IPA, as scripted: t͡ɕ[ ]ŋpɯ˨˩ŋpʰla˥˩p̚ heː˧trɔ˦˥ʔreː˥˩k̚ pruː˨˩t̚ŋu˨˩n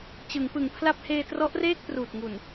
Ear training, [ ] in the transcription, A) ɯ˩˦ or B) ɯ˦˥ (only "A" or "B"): A